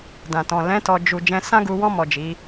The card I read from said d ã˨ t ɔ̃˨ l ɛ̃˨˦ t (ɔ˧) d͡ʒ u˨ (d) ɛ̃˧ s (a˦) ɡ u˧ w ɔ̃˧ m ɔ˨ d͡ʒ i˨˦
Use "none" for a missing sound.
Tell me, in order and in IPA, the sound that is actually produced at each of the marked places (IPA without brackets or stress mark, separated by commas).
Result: ɔ˧, d͡ʒ, ã˦